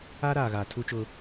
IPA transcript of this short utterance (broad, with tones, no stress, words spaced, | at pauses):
a˦ɾaː˨ ɣaː˨tʰu˦t͡ʃʊ˦